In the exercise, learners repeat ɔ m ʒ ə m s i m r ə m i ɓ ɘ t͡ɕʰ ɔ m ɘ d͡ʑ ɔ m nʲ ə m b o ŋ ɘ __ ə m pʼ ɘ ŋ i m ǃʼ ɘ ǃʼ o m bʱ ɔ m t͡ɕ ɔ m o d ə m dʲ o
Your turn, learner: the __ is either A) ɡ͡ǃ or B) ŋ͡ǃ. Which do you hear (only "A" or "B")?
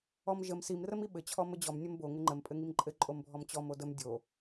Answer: B